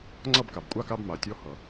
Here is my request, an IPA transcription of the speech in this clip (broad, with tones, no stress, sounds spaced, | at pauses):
ŋ͡ǀ ʌ˥˨ b k a˩ b kʷʼ a˧˥˧ k a˧˥˧ b m a˩ tʲ ɔ˧˥ h ʌ˩